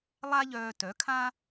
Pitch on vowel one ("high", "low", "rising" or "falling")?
high